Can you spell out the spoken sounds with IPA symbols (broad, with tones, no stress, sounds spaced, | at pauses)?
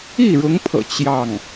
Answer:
i˥˩ ɻ ʊ˧˥ ŋ pʰ ɤ̰˨˩ t͡ɕ j ɑ˥˩ ŋ